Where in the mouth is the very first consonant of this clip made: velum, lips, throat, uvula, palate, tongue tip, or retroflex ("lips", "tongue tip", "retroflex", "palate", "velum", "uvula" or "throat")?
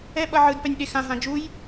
lips